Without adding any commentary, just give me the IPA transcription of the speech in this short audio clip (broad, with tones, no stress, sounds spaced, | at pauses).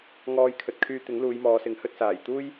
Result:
ŋ ɔː˧ j kʰ ɵ˨ t̚ kʰ yː˧ t̪ ɪ˨˥ ŋ l uː˨˧ j m ɔː˨˧ s ɪ˨˥ ŋ h ɵ˧ t̚ s aː˨˩ j t̪ uː˥ j